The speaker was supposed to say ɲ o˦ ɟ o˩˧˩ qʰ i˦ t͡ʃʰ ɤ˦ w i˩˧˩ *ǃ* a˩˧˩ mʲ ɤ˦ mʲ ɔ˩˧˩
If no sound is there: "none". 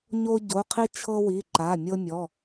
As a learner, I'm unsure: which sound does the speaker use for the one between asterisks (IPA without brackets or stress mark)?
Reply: ǃ